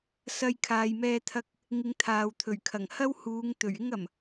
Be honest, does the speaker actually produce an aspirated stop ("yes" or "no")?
yes